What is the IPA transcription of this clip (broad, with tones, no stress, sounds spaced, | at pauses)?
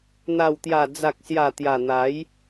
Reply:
n̪ a˨˩ w t̪ j a˨˩ d͡z a˨ k̚ s j a˨˩ t̪ j a˨˩ n̪ a˨˦ j